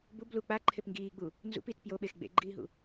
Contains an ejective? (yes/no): no